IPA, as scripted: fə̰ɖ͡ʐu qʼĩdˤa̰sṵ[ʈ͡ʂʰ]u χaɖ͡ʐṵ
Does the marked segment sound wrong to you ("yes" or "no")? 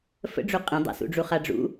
yes